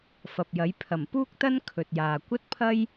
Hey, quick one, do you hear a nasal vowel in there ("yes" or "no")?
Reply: no